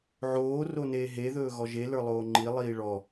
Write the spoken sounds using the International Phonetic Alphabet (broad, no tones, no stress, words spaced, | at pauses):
ʕoː roneːɦe ðɵːɣɔʒe lə˞lˠoːŋ͡ǃi lˠiːɭɔ